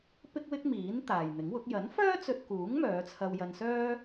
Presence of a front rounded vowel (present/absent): present